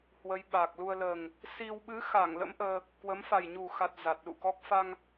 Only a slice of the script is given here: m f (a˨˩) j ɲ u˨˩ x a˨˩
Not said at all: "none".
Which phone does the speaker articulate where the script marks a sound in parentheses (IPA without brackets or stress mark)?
a˨˩